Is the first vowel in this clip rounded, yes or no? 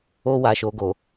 yes